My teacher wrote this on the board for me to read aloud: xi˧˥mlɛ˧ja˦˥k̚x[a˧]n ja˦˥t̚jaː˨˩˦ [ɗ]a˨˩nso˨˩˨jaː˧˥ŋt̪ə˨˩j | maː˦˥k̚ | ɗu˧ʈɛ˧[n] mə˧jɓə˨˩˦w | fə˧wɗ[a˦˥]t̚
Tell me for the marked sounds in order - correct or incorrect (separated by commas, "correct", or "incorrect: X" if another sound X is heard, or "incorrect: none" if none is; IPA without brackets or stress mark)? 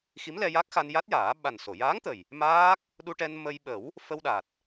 correct, incorrect: ɓ, correct, incorrect: a˨˩